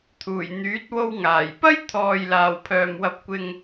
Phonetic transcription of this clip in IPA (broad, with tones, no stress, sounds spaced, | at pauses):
t̪ʰ uː˨˩ j n̪ yː˨˥ t̚ w o˧ w ŋ aː˨˩ j p ɐ˥ j t̪ʰ ɔː˨ j l aː˨˩ w pʰ œː˨˩ m w ɐ˨ p̚ kʷ ɪ˨ ŋ